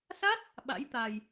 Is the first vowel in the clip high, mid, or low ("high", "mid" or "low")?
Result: low